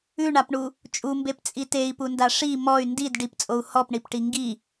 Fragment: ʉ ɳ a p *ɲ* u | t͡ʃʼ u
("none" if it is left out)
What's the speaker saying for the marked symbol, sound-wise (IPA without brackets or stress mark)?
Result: ɳ